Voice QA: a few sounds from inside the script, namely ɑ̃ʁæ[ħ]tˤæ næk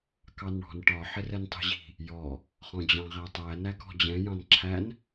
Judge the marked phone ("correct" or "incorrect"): incorrect